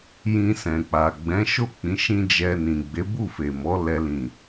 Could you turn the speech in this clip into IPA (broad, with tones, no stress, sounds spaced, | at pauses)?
j ĩ˧ s ɛ̃˨ k͡p a˨ ɡ͡b ɛ̃˨˦ ʃ o˦˨ k͡p ĩ˨˦ ʃ ĩ˦ d͡ʒ ɛ˧ n ĩ˨ ɡ͡b e˨˦ b u˦˨ f e˨ m ɔ˨˦ l ɛ˦ l ĩ˦˨